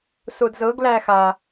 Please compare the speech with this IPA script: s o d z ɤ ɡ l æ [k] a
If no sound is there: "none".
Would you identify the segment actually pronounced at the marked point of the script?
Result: x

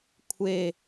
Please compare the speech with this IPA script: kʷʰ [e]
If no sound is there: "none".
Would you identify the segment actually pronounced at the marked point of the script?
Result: e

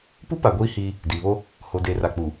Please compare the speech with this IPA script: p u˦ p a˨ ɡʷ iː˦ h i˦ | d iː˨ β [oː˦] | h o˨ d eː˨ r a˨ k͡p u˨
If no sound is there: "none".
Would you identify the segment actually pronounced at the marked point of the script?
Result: o˦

